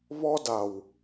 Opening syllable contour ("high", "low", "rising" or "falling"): high